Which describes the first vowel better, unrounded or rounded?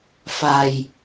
unrounded